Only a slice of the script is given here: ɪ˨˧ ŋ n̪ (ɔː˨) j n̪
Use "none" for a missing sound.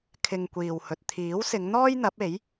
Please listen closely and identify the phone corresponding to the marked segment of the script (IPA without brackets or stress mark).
ɔː˥